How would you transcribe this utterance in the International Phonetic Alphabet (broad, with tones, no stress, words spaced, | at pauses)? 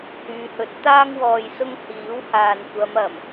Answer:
hyː˨˧hɵ˨˥t̚t̪aː˥ŋ wɔː˨jsʊ˧ŋ hiː˨˥whaː˨n kʷɐ˨˧mɐ˨˩m